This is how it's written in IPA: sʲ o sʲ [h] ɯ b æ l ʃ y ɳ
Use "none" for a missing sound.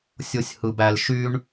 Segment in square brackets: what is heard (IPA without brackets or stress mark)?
h